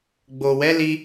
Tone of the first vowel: low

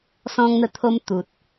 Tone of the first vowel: high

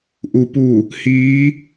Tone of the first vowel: low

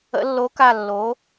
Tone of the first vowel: rising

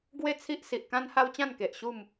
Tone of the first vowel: falling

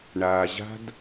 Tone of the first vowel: low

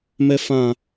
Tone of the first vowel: high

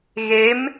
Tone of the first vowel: rising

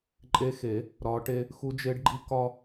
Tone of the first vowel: rising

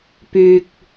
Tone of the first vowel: low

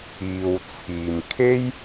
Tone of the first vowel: low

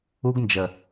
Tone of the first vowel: high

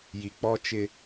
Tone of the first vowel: low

